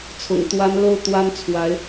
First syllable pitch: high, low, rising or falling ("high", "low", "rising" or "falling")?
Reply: low